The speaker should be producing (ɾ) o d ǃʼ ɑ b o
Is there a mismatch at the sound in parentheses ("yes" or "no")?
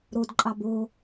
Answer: no